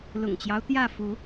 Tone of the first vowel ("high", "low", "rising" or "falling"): low